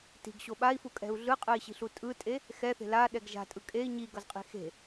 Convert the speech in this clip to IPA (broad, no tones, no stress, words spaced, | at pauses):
ti̤ɡɕo ɓai̯fukʼɛ̤u̯ ɮɯqʼɯi̯ɕi̤ɬu tʼɯtʼe | xɛθe̤ laɗɛɡ ʒa̤tʼɯ kʼei̯ ɲiɡʌzqʼi̤ xe̤